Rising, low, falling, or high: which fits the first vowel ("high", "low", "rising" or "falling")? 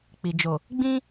low